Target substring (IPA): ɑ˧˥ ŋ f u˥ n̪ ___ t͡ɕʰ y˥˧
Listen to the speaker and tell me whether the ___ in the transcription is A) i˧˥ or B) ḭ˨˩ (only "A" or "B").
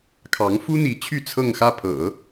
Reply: A